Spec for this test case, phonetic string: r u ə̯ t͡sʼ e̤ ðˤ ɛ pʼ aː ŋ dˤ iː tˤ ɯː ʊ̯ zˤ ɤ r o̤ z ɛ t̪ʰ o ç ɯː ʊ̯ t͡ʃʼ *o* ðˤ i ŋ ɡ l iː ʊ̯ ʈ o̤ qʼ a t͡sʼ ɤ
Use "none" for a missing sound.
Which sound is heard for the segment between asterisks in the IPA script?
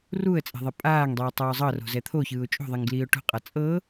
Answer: o̤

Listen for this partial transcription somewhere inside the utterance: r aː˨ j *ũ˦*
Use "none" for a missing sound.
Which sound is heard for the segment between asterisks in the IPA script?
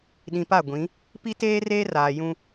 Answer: ũ˦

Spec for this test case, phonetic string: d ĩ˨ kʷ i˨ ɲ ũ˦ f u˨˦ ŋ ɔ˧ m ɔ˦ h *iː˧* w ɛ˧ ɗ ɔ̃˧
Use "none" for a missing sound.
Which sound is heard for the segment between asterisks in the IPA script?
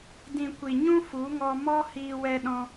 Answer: iː˧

